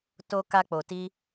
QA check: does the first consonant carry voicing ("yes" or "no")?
no